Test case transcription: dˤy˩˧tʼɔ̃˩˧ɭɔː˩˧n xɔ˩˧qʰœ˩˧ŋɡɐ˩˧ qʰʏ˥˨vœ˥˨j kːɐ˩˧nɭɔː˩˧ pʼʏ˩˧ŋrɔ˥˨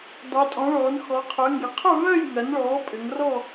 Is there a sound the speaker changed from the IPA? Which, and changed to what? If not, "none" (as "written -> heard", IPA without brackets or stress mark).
kː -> ŋ